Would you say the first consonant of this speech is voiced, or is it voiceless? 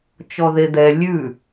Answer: voiceless